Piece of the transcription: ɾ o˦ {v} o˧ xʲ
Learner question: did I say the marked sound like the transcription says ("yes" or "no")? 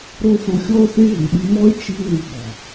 no